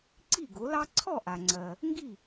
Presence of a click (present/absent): present